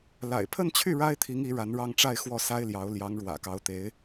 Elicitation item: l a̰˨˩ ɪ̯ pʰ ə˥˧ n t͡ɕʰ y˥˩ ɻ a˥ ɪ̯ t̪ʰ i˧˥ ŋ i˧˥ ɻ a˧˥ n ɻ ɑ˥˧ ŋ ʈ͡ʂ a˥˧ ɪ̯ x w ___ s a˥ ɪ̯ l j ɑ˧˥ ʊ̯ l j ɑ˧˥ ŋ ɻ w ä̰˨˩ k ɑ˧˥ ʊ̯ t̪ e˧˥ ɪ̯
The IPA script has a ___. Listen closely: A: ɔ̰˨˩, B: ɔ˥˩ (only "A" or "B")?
B